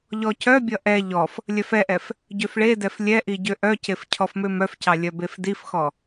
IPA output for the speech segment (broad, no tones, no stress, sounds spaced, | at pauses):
ʎ ɔ c œ bʲ ʌ ʔ ɛ ʎ ɔ f | lʲ œ f ɛ ʔ ɛ f | ɟ ø f ɭ e d ɛ f lʲ ɛ ʔ i ɟ ø ʔ œ c e f cʰ ɔ f m ø m œ f c ɑ lʲ œ b e f d i f x ɔ